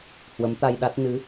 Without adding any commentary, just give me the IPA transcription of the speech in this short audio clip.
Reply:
h w ə˨˦ m t̪ a˧ j ɗ a˦˥ t̚ n ɨ˨˦

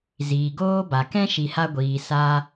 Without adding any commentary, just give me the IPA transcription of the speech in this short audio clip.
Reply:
z iː˨ ɡ oː˦ b a˨ k ɛ̃˦ ʃ i˨ h a˧ ɡʷ iː˨ s a˧

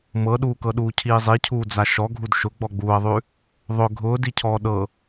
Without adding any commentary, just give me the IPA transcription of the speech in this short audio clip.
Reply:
m ɤ ɗ uː k ɤ ɗ uː cʰ iː zˤ i cʰ uː d͡z a ʃ ɔ ɡʱ u d ʃ ʊ ɡ͡b ɔ ɡ͡b uː ɐ̯ ðˤ ʉ | ðˤ ʊ ɡʱ ʊː d i cʰ ɔː ɗ ɤ

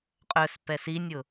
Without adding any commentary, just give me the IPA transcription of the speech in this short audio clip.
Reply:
qʼ œ s p ɛ s i nʲ ʊ

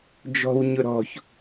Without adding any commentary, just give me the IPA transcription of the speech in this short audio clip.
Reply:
d͡ʒ ɔ̤ w ɲ ʊ ɾ ɔ̤ ç

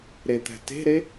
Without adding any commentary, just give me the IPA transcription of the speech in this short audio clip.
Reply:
ɾ e t̪ æ̤ t e̤ ɾ e

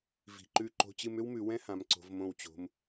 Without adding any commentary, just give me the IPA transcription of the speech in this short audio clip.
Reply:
v i̤˩˧ ǃ ʉ˧˩ ǃ o̤˧ t͡ɕ ɨ˧ m ʏ˥ w m ʉ˩˧ w ɛ̃˥ h ã˩˧ m ǀ o̤˩˧ v m õ˧˩ w t͡ɕ o̤˩˧ m

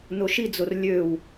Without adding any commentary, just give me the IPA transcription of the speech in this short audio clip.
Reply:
n o ʃ i d͡z o r lʲ ø w

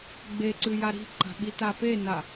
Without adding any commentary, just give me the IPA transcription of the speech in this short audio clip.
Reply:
ɡ͡b e ǀ ʉ j a ɾ i̤ ǃ a̤ ɓ i t a p e n a

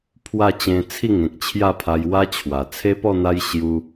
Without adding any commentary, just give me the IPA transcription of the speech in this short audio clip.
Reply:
pʰ w a˥˧ t͡ɕ ẽ˧ t͡sʰ i˥˧ ŋ ẽ˨ k̚ t͡ɕʰ j a˥˧ pʰ a˧ j w a˦ t͡ɕʰ w a˨˩ t͡sʰ e˦ p ɔ˥˧ n̪ a˦ j ɕ j u˦

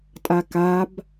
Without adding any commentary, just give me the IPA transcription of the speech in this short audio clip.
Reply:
tʼ a k a b

